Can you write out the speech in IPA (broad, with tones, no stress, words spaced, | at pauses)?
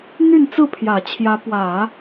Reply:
n̪y˥˧n t͡sɹ̩˥˩pʰjä˨˩ t͡ɕʰjä˧˥pwä˨˩˦